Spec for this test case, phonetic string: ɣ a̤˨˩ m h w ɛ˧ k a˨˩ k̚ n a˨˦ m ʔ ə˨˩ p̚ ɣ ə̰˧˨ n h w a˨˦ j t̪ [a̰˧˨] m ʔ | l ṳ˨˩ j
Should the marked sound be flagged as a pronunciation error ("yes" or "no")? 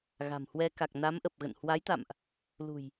no